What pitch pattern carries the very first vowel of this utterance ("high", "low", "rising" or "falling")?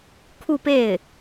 falling